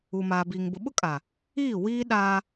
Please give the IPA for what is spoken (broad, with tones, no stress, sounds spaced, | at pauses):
u˨ m aː˨ b iː˨ ŋ b ʊ˨ ɓ ʊ˦ kʼ a˨ | iː˦˨ w iː˦ ɗ aː˦